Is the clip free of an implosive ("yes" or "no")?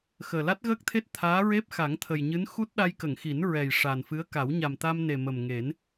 no